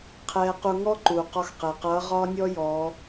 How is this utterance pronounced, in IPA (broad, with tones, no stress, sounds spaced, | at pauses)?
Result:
qʰ ɛː˧ q u˧ ŋ ɔ˥ ǃ uː˩ q ɒ˧ x q ɛ˩ q ʌː˧˥ ʁ ɒː˥ nʲ ɔ˥ j ɔː˩˧